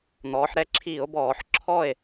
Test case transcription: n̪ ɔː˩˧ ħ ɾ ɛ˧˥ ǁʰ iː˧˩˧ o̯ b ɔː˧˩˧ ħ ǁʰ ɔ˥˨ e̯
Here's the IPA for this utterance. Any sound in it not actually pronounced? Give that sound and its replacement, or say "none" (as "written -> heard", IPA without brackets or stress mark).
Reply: none